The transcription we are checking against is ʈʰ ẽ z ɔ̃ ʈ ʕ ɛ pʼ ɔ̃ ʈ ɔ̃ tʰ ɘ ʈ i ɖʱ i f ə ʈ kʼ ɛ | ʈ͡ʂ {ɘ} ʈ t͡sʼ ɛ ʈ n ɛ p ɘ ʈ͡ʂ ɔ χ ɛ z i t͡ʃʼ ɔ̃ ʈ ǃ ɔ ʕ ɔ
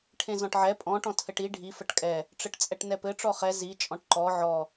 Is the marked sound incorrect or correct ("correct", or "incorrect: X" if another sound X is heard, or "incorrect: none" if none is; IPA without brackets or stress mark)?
correct